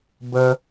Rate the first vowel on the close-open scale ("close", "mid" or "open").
mid